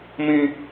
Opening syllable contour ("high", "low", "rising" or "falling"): high